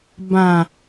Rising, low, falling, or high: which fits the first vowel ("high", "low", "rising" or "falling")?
low